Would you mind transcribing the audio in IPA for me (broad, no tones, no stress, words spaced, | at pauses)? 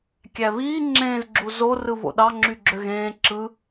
kʲæβiː ŋ͡ǁẽːzɡ͡ǁu zorɯ βo̰ɗɑ ŋ͡ǁyɡ͡ǁøɣẽː ǁɯ